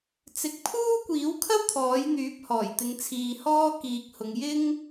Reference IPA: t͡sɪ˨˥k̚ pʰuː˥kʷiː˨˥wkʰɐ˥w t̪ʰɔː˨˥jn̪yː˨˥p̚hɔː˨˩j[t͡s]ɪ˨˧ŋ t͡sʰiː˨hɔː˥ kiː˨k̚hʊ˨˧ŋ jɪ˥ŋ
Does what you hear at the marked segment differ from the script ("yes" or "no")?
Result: yes